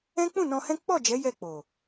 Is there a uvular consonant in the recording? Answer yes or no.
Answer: no